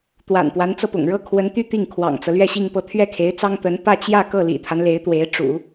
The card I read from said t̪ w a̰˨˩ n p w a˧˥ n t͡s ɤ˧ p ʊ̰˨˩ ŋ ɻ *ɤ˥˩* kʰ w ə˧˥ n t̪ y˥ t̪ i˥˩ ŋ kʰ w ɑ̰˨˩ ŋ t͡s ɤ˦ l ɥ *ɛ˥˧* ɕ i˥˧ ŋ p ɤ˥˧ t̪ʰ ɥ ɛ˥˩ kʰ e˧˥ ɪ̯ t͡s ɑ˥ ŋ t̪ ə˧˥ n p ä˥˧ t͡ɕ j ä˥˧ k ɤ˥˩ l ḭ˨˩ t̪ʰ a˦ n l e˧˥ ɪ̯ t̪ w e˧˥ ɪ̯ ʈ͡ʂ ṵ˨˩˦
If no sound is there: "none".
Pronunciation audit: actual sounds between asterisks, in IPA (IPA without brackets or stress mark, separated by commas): ɤ˥˩, ɛ˥˧